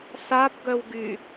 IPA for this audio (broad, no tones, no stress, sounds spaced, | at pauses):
s a b ɡ œ w ɡ y